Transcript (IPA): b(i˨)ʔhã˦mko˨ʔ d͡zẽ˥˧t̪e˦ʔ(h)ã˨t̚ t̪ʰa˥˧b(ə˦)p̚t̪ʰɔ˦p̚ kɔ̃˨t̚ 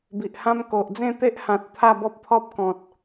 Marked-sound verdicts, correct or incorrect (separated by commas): correct, correct, incorrect